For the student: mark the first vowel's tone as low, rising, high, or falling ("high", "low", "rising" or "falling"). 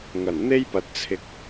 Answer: low